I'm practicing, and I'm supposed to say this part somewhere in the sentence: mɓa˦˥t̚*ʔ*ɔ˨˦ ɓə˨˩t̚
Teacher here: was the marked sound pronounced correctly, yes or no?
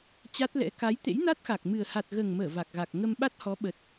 no